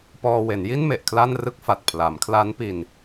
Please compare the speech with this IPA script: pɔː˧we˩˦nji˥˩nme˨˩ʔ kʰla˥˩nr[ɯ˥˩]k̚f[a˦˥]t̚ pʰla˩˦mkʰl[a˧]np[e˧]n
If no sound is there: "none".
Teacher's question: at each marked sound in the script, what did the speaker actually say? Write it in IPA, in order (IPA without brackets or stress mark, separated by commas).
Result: ɯ˥˩, a˨˩, a˦˥, i˧